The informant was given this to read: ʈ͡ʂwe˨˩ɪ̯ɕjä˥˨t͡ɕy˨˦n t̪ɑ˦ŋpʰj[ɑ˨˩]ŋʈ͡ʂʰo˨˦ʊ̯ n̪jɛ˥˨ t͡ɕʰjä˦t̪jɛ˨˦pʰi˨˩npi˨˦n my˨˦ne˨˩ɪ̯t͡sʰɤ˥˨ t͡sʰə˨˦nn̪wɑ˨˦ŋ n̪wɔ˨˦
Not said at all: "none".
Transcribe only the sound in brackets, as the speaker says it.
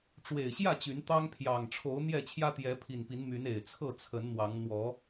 ɑ˨˩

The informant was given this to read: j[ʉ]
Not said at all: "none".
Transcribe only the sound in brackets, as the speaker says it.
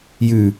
ʉ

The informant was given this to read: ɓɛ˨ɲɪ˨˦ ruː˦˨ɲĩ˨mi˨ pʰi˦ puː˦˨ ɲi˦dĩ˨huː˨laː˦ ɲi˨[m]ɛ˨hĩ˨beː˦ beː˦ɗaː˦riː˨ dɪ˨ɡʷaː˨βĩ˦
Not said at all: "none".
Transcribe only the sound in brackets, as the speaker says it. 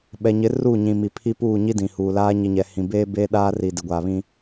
ɲ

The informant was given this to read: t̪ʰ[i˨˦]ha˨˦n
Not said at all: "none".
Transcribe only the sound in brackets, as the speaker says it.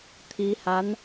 i˨˦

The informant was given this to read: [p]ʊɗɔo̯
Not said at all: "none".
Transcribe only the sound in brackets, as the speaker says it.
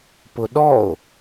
p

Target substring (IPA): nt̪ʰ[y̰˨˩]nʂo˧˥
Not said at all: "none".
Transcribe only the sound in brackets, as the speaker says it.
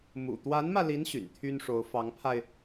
y˥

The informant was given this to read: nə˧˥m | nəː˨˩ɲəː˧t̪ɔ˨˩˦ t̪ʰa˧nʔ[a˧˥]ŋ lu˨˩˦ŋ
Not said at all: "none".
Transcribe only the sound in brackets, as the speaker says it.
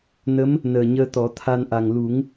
a˨˩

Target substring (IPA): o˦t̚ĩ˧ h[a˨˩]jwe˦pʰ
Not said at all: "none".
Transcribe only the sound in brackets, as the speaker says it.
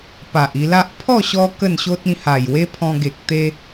a˨˩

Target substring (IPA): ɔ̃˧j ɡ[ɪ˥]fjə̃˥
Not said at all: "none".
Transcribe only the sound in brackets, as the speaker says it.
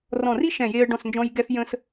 ɛ˥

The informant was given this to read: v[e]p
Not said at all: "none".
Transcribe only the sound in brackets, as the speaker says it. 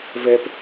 ɛ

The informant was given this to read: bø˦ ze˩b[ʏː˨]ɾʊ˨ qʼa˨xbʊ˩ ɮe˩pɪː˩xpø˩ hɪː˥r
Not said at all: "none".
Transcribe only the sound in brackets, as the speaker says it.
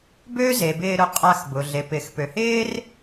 ɪː˨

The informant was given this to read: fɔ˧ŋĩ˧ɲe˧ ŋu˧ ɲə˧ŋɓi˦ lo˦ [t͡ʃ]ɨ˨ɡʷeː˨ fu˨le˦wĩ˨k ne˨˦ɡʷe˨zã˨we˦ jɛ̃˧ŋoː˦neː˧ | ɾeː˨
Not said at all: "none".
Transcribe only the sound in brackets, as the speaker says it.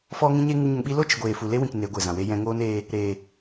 t͡ʃ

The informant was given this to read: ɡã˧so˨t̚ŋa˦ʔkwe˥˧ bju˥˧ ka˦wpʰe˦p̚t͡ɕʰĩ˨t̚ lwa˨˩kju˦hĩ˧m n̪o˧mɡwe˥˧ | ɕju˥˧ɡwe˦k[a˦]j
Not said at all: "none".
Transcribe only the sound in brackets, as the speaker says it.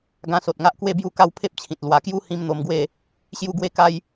a˦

